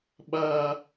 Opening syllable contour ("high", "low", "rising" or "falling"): high